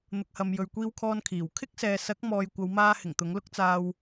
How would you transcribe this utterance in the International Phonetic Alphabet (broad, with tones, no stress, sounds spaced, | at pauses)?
n̪ ʊ˧ k̚ h ɐ˧ m j ɵ˨ ɥ kʷ iː˧ w kʰ ɔː˧ n kʰ iː˨˩ w kʰ ɪ˥ k̚ s ɛː˨ s ɐ˨˥ k̚ m ɔː˨ j kʷ ɐ˨˧ w m aː˧ h ɪ˨˩ ŋ t̪ ʊ˨˥ ŋ l ʊ˥ k̚ t͡s aː˧ w